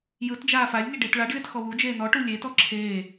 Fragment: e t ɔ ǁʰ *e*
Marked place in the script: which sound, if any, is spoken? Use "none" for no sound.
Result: eː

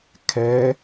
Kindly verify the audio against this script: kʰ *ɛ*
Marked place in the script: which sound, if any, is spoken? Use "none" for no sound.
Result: ɛ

